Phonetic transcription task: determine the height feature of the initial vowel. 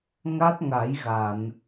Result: low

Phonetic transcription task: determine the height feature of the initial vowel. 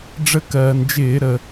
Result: mid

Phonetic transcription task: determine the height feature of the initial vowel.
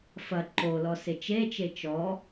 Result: low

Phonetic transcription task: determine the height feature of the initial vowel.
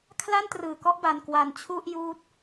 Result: low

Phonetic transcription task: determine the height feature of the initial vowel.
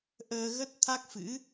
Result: mid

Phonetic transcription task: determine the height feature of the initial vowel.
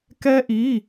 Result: mid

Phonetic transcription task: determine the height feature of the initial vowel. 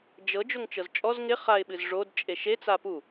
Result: mid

